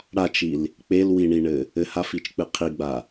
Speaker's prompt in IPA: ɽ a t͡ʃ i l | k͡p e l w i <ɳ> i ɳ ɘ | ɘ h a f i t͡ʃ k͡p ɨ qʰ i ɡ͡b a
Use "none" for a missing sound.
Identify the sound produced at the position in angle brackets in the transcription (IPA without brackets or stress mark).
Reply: ɳ